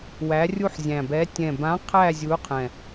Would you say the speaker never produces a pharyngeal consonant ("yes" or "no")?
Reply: no